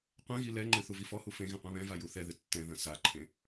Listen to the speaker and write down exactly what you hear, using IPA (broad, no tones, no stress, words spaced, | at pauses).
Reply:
qʷɛ̃ɣi lɛŋ͡ǃɨ θuvifɔhu fẽ ɣẽqʷɛ̃βɛ̃va juθɛðɨ tːɛ̃ ðɐ̃saǃʰẽ